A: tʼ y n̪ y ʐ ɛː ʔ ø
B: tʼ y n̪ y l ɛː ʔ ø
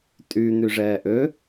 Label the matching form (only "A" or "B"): A